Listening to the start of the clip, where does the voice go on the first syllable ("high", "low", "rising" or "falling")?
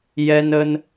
high